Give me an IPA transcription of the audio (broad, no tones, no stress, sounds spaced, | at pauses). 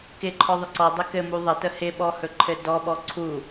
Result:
k ɪ ǃʰ ɔ ðˤ ɪ ǀ ɔ dˤ ɪ k ɘ m u ðˤ ə t ə h ɪ ɓ ɔ h ɵ ǃʰ ɘ d ɔ ɓ ɔ ǀʰ u